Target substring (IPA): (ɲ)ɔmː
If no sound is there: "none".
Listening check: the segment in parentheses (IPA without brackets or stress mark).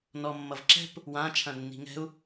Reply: n